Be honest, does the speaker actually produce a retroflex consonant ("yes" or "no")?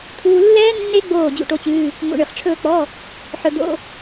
yes